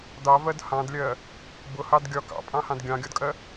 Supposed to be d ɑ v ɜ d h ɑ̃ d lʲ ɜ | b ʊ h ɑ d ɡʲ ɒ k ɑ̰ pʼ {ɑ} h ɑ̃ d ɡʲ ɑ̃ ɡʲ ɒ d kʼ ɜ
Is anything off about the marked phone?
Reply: yes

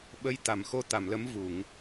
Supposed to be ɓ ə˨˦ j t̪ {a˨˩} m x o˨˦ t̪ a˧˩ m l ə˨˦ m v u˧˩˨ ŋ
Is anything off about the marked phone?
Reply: yes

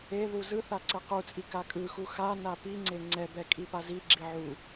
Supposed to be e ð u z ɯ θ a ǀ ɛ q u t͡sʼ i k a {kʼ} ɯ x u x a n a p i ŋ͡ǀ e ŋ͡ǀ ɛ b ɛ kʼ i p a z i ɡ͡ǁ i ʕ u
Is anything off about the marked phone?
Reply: no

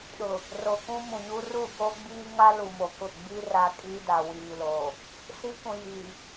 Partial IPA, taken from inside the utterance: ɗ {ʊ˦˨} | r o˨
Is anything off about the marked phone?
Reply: yes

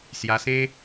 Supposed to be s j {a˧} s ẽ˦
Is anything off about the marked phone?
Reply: no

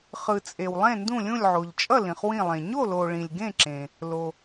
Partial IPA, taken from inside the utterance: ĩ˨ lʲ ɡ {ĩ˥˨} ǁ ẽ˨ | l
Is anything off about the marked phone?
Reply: yes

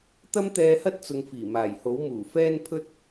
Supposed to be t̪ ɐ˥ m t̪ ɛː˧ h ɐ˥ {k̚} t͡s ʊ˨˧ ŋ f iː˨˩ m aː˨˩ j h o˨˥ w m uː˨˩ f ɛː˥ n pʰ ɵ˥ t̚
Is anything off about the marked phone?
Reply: yes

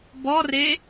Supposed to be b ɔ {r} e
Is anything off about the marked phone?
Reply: no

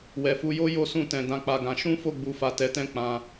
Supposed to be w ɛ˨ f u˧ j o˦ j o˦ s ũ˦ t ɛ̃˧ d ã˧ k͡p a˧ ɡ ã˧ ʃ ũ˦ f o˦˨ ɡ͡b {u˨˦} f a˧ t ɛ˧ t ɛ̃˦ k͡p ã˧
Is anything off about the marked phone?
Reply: no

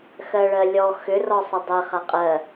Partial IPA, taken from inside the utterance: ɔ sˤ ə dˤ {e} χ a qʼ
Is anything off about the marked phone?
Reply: no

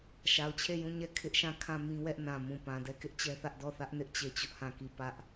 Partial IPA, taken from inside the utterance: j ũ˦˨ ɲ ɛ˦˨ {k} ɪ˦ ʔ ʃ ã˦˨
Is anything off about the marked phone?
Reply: yes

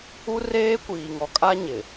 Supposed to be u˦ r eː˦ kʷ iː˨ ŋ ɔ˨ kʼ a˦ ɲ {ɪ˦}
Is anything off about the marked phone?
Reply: yes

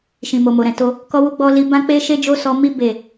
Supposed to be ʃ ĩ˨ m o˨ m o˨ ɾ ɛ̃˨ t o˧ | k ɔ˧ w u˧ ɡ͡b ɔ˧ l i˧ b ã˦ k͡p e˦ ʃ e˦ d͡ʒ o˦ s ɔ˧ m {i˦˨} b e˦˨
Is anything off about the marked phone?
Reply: yes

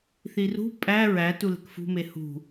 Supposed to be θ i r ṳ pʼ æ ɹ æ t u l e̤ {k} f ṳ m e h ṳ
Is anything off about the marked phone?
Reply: no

